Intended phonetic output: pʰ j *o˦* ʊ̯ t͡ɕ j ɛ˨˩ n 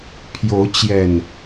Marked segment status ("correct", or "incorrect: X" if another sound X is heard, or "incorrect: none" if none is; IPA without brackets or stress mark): incorrect: o˨˦